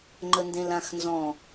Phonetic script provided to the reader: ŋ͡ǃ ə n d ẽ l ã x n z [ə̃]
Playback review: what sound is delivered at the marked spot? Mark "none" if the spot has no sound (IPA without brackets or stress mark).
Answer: ɔ̃